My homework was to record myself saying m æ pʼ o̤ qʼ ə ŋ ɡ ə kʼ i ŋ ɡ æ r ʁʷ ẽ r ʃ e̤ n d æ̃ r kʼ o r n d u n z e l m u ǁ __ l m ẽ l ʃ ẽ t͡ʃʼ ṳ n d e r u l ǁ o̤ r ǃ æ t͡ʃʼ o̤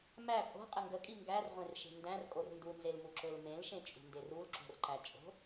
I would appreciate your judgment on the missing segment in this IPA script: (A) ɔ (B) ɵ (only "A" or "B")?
B